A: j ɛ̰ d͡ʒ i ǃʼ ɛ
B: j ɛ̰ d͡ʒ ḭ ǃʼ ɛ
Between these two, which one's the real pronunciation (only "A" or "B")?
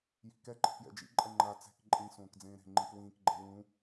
B